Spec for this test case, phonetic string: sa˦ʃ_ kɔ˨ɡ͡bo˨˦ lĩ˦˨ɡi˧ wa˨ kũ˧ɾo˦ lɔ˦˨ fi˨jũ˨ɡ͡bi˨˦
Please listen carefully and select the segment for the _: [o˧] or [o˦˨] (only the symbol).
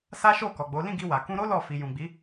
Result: o˦˨